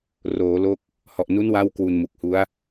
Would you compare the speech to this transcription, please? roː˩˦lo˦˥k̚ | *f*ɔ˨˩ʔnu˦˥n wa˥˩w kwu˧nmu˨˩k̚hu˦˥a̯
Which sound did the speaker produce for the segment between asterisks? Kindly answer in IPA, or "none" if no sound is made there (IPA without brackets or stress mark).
h